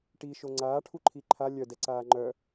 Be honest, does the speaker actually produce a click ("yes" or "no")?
yes